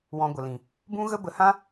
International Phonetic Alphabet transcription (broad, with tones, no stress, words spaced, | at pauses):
wɔ̃˧ɡʷə˨lĩ˨ | bũ˦ɣə˦ bə˧hã˦